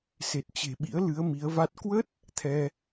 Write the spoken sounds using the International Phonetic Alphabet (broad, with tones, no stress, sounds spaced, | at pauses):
s e˨˩ t̚ t͡ɕ e̤˨˩ ɓ ḭ˧˥ ə̯ l ɨ˨˦ ə̯ m i˨˦ ə̯ v a˦˥ t̚ k w ə˦˥ t̚ | t̪ʰ ɛ˧